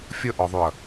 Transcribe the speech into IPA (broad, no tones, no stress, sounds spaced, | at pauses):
fʲ ə ʔ ɔ ðˤ y ɐ̯